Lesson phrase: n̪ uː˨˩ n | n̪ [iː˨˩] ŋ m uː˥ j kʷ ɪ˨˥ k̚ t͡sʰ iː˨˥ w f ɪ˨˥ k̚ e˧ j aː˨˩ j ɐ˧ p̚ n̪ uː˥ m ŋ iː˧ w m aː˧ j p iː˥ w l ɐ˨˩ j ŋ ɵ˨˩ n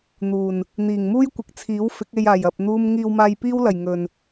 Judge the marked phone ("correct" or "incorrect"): correct